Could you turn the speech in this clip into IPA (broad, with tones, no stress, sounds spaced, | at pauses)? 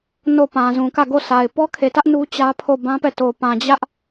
n o˦˨ p ã˨ z ũ˨ k ä˦˨ ɡ o˦˨ s a˨ ɪ̯ p ɔ˦ kʰ e˨ t ä˦ ʔ n u˦ t͡ɕ ä˦ pʰ o˦˨ b ã˦ p ɛ˦˨ t o˨ p ã˨ d͡ʑ ä˦ ʔ